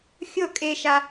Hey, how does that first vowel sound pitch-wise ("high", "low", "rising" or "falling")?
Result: falling